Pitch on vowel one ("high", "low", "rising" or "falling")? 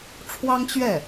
high